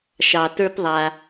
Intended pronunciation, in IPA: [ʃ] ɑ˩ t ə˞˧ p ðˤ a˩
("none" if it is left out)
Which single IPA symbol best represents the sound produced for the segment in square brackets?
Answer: ʃ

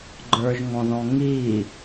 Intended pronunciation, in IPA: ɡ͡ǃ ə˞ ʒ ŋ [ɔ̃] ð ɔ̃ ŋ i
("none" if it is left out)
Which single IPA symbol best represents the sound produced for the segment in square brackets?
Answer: ɔ̃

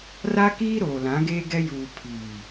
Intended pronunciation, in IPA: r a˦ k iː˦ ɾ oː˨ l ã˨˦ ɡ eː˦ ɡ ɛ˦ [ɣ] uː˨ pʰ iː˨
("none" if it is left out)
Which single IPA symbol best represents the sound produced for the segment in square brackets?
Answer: j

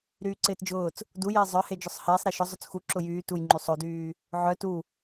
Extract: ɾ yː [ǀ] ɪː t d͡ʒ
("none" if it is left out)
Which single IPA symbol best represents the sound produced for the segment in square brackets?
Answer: ǀ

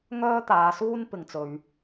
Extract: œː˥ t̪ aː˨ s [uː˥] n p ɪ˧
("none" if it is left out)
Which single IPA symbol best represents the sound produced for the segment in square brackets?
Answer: uː˥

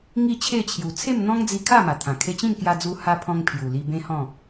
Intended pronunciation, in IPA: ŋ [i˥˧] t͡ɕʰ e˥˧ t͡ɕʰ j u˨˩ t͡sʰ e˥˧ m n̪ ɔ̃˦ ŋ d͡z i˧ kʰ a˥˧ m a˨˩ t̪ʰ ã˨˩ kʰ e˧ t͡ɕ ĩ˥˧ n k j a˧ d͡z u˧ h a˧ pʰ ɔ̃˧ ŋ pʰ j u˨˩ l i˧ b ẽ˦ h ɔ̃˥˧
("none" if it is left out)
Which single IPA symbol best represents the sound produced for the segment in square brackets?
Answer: i˥˧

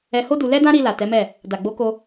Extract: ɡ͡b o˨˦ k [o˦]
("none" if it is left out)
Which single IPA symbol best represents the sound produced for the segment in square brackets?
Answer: o˧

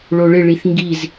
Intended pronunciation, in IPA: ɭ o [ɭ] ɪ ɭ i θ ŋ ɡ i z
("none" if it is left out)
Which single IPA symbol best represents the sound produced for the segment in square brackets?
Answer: ɭ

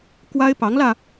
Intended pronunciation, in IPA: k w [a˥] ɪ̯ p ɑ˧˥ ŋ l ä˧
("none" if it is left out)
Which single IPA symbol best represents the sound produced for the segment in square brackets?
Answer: a˥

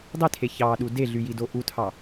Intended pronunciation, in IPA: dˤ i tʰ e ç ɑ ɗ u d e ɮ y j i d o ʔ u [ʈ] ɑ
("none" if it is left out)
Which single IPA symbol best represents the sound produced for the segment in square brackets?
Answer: tʰ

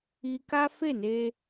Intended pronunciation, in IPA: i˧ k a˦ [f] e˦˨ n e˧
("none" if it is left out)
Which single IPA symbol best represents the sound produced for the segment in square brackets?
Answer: f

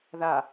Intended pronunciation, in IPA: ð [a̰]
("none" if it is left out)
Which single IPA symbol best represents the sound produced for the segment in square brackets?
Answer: a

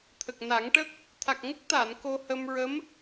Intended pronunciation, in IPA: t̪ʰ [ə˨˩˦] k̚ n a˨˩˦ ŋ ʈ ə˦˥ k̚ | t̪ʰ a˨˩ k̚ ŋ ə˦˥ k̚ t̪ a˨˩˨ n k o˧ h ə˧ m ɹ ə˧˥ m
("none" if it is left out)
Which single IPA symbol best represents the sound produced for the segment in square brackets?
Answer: ə˨˩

